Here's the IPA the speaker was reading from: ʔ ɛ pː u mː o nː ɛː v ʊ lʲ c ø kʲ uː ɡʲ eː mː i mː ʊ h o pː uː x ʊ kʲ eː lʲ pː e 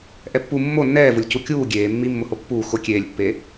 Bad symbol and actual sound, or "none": ø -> u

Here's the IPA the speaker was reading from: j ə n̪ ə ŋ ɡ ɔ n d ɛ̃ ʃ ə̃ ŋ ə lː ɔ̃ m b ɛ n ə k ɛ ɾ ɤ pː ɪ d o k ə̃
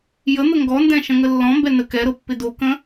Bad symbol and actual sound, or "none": none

